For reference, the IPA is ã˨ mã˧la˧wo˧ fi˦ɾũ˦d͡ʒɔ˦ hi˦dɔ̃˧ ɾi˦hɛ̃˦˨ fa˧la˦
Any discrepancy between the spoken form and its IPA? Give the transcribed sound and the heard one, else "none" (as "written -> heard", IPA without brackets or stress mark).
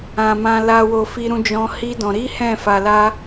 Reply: ɔ˦ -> ɔ̃˦